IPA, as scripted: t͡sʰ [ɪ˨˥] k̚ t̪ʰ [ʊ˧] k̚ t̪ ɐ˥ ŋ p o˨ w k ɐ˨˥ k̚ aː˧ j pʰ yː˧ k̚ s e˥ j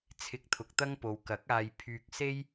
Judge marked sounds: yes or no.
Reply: no, no

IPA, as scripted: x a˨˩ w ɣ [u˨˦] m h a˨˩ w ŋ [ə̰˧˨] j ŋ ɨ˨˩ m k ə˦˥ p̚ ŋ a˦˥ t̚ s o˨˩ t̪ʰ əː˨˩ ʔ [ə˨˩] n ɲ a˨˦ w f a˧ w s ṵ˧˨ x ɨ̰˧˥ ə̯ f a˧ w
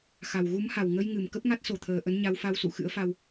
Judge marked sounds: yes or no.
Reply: yes, no, no

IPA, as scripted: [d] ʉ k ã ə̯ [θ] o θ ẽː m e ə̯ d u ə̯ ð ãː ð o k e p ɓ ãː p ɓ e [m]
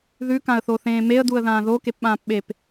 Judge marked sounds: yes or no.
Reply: no, yes, no

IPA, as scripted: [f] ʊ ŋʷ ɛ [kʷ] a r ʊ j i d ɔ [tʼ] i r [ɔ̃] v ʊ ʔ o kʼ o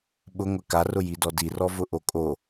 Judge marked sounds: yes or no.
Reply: no, no, no, no

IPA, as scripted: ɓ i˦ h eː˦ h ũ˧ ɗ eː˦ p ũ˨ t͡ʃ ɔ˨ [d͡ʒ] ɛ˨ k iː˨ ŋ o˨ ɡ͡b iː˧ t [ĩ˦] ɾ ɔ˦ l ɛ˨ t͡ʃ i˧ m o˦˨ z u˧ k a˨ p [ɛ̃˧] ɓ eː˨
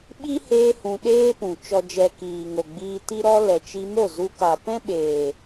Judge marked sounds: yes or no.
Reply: yes, no, no

